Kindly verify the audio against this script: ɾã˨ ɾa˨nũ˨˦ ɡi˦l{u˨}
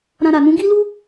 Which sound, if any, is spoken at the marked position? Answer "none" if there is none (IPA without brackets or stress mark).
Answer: u˦